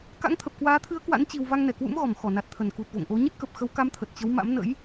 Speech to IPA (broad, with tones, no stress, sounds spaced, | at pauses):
k a̰˧˥ ŋ t̪ʰ ə˨˩ p̚ k w aː˨˦ t̪ʰ ɨ˨˦ ə̯ k w a̰˧˥ n t͡ɕ i˧ w v a˧ ŋ n ɛ˧˩ k w ṵ˧˥ m ɣ ɔ˧˩ m x ɔ˧˩ n a˨˩ t̚ t̪ʰ ə˧˩ n k u˨˩ t̚ v o̰˧˨ ŋ ʔ o˨˦ ɲ ə˦˥ t̚ k ə˨˩ p̚ x ə˨˦ w k a˨˦ m t̪ʰ ə˨˩ t̚ t͡ɕ ə˨˦ w m a̰˧˥ m n ə̰˧˥ j